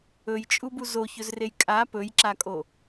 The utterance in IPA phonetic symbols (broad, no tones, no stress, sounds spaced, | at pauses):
ɵ j t͡ʃʼ u b u z o ç ɵ z r e j kʼ a p ɵ j ǁ a kʼ o